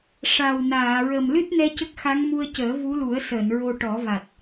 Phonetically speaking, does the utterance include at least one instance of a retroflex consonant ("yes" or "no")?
yes